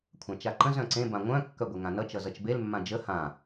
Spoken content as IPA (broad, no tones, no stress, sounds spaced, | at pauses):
kʷʰ ã t͡ʃ a ǃ ə̃ z œ̃ ǀ ẽ b ã ŋʷ œ̃ kː œ ɡʷ e ŋ ã n ʌ t͡ʃ ʌ z ʌ t͡ʃ b e l mː ã d͡ʒ ə h ã